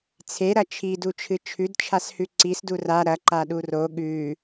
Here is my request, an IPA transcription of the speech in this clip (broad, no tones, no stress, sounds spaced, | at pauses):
t͡sʰ e ɾ ɐ t͡ʃʰ i d u t͡ʃʰ ɨ t͡ʃʰ ʉ d t͡ʃʰ a s h ʉ ǀ i s d u r a ɾ ɐ ǃ a ɗ u r o ɠ ʉ